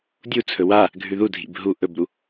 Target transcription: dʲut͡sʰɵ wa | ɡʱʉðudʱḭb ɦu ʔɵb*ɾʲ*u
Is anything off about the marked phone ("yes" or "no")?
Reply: yes